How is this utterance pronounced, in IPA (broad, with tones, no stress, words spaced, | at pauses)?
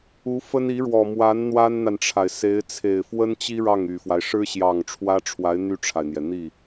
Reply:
u˧˥fə˥n i˧˥ɻwɔ˨˩mwa˧˥n n̪wa˥nn̪a˨nʈ͡ʂʰa˩ɪ̯se˧˥ɪ̯ t͡sʰe˨˩ɪ̯fwə˥nt͡ɕi˥ ɻɑ˥˩ŋy˨˩fwa˦ɪ̯ ʂɻ̩˥ɕjɑ˨˩ŋ ʈ͡ʂʰwä˥ʈ͡ʂʰwa˧˥ɪ̯ n̪y˥˩ʈ͡ʂʰa˩ɪ̯n̪jɛ˩ n̪i˥˩